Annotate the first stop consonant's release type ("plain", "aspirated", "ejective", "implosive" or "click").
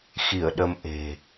implosive